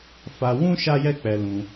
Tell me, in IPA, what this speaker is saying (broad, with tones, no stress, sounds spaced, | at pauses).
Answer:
f a˧ w ũ˦ ʃ a˦ j ɛ˦ k͡p ɛ˧ l ũ˧